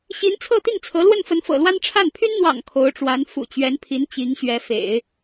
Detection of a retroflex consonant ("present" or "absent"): present